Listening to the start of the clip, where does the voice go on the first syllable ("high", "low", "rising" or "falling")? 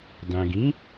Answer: low